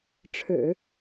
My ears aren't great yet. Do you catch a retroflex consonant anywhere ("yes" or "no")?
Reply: yes